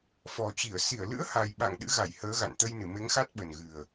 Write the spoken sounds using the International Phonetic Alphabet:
f ɔ˨˩ t͡ɕ i˧˩ ə̯ s i˧˩ ə̯ l ɨ̰˧˥ ə̯ h a˨˩ j ɓ a̰˧˨ ŋ ɗ ɨ̰˧˥ ɣ a˧˩ j h əː˨˦ ɣ a̰˧˨ n t̪ ə˧ j n ɨ˧˩ m e˨˦ ŋ x a˦˥ t̚ ɓ ə˨˩ n ɣ ɨ˨˩ ə̯

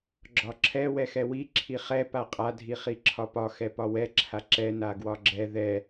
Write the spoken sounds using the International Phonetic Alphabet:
ɡ͡ǁ ɒ ǁʰ ɛ w ɛ x ɛ w i ǁʰ i χ ɛ p a qʼ a dʱ i χ i ǁʰ ɒ p ɒ x ɛ p ɒ w ɛ ǁʰ a ǁ ɛ n a ɡ w ɒ ɡ͡ǁ ɛ ð ɛ

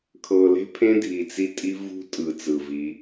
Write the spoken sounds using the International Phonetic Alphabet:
kʰ ɤ˨ l e̤˦ pʰ ẽ˦ dʱ i˨ t͡s i˦ tʼ i˦ v ṳ˦ tʼ ɯ˨ t͡s ɯ˨ v i˨˦

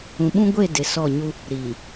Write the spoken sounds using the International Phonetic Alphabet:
ũ˨ ɓ ũ˦ ɡʷ e˦˨ d ɪ˨ s ɔ˦˨ ɲ u˦ | ɾ iː˨

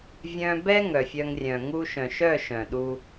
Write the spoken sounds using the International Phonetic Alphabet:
vʲ œ̃˧ b ɛ˦ ŋ œ˨ fʲ œ˧ ŋ rʲ œ̃˨ ŋ u˧ ʃ œ̃˨ ʃ œ˦˨ ʃ œ̃˨ ɗ u˧

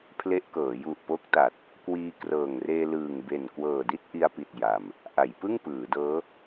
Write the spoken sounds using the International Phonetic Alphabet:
pʰ l e˦˥ ʔ k ɤː˩˦ j u˨˩ ʔ p o˦˥ k̚ t a˨˩ t̚ | k w iː˧ k r ɤː˨˩ ŋ r eː˧ l ɯː˨˩ ŋ b e˨˩ n k w ɤː˨˩ d i˥˩ t̚ ʔ i˧ a̯ p i˨˩ t̚ j a˧ m | ʔ a˩˦ j p ɯ˥˩ ŋ p ɯː˩˦ d ɤː˦˥

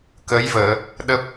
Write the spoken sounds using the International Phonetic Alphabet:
k ə˨˦ j v əː˧˩˨ | ɗ ə˦˥ p̚

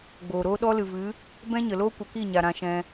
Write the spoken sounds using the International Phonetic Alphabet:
ɡ͡b oː˨ ɾ oː˦ ɗ ɔ˦ l ɨ˨ v ɨ˨˦ | b ɛ̃˦ ɲ ə˨ l oː˦ kʷ ə˧ k i˦˨ ɲ a˨ ɾ ã˧ ʃ ɛ̃˧

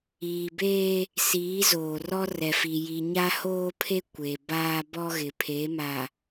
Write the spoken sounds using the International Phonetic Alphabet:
iː˨ b eː˦ | s iː˨˦ z oː˨ r ɔ˦ r ɛ˨ f i˨ j i˨ ɲ a˦ h oː˦ pʰ e˦ kʷ e˨ b aː˦ b ɔ˦ ɣ ɪ˨ pʰ e˨˦ m a˨

